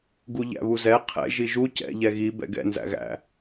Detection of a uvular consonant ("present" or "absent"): present